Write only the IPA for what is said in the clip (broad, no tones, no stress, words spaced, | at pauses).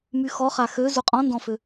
myxɔχa xø zuqʼɔ̃ndɔ̃fø